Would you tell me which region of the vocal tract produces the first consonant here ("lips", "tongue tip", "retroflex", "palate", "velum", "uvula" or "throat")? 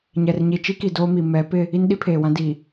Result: palate